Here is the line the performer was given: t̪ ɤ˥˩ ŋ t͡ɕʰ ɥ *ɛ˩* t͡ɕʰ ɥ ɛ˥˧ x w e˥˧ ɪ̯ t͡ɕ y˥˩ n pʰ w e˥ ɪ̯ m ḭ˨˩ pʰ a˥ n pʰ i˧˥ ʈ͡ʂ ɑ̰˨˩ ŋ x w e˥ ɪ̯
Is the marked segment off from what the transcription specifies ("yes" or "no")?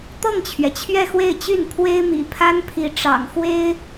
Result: no